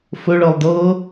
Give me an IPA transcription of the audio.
f ɵ ɭ ɤ lˠ d ɤ

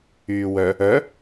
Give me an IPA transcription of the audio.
yː w œ | œ

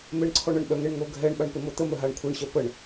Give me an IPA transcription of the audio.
m e ɳ ǀʰ ɔ ɳ ə ɳ ɓ œ ŋ e ɳ ŋ o ɡʱ ɛ ɳ ɓ a ɳ p e m o t̪ ə m œ ɦ a ɳ kʷʰ e ɳ ɕ œ p ə ɳ

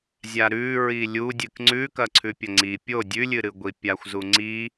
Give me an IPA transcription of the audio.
zʲ a ɾ ʉ ɹ i lʲ u dʲ ɨ k ŋ͡ǀ ʉ k ɐ ǀʰ ʉ pʲ ɐ ŋ͡ǀ i pʲ o dʲ ʉ lʲ ɨ ɾ ɨ ɡʷ i pʲ a xʷ z u ŋ͡ǀ i

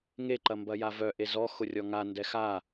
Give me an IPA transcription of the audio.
ŋ e ǃ ɐ m b ɐ j a v œ ʔ e z ɔ x ʊ rʲ ɔ ŋ a n d ɛ x a

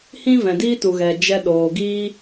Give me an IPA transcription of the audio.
h ĩ˦ v ɛ̃˨ d iː˦ t u˨ ɣ ɛ˨ d͡ʒ ɛ˧ ɗ oː˨ ɡ iː˧

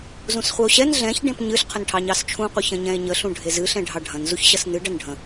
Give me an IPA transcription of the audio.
z ũ s χʷ ɛ o̯ ɕ ɛ n ɮ ɛ̃ ç ɖ ẽ p ɲ ɨ ɬ qʰ ə n ʈʰ ɑ ɲ ɑ s t͡ʃʰ ũ qʷ ə ç ɐ̃ ɲ ɛ̃ e̯ ɲ ə ɬ ũ ɖʱ e z ɨ ɬ ɛ̃ ɖʱ ɑ ɖʱ ɐ̃ n z u ç ɕ ɐ s n ɨ ɖ ɐ n ɖʱ ə̃

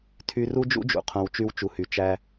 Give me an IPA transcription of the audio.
tʰ y˧ r u˦ d͡ʒ ṵ˦ d͡ʒ ṵ˨ qʰ õ˨ w t͡ʃ y˧ w t͡ʃ u˨ h y˨ t͡ʃ æ˦

